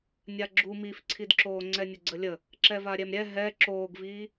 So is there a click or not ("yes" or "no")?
yes